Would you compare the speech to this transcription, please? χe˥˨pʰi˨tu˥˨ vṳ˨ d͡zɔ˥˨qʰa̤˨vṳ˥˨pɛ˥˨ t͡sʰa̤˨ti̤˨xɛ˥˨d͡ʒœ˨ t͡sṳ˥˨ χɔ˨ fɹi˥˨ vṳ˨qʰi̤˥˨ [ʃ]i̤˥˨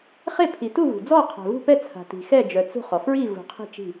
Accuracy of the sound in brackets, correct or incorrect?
incorrect